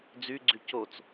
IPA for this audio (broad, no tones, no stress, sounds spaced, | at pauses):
d͡z y ɡ͡ǀ y c o t͡s